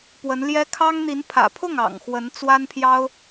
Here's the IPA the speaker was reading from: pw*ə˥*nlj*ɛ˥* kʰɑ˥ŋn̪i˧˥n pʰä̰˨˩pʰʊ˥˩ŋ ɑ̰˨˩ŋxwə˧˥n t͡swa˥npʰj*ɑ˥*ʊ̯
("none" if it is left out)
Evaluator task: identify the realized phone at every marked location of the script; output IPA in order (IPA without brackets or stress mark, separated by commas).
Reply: ə˧˥, ɛ˥, ɑ˥